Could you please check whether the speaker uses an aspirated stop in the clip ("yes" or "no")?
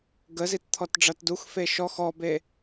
yes